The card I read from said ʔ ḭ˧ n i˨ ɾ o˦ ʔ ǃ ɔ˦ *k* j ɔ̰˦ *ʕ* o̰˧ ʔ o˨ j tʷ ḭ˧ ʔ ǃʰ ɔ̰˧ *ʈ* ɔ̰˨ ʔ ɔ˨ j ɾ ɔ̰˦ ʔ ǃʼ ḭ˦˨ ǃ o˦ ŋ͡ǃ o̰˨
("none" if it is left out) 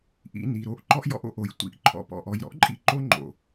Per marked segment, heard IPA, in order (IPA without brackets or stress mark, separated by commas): ʔ, ʔ, p